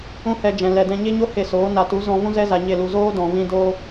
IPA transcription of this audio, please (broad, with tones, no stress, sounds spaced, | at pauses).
ũ˦ h ɛ˧ d͡ʒ ɛ̃˨ l ɛ˨ d ɛ̃˧ ɲ e˦ ɲ o˦ h e˦˨ s oː˨˦ n a˨ t u˨˦ z ɔ̃˧ v ũ˦ z ɛ˦ z a˨ ɲ e˦˨ l u˨ z oː˦ d ɔ̃˨ v ĩ˧ d oː˧